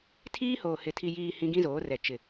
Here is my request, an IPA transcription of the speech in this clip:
tʰ iː˦ h oː˨ h ɪ˨ tʰ i˨ j iː˨ h ĩ˦ ɡ ĩ˦ z oː˨˦ r ɛ˨ t͡ʃ ɪ˨

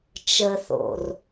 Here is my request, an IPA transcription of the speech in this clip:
t͡ʃ ə θ o̰ r

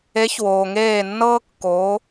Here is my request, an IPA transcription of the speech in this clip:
e˨˦ ç w oː˩ ŋ eː˧˩ nː ɤː˦ kː oː˨˦

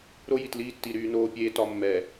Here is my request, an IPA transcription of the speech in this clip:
ɾ o˦ j i˨ t l iː˦ tː i˨ ɾ yː˦ n oː˦ pʲ eː˦ t ɒ˨ mː ɛ˨

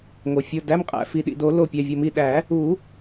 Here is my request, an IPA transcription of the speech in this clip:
ŋ o˩ fʲ o˩˧˩ d æ˩˧˩ m qʼ æ̰˧˩ f i˩ ɗ ḭ˩ d o˨˩˦ l o˧˩ pʲ æ˩˧˩ vʲ o˧˩ m i˧˩ ɗ æ˨˩˦ | u˨˩˦

